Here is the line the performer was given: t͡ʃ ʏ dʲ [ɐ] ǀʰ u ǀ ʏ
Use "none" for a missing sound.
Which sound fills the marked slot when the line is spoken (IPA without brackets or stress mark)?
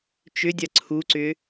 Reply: ɐ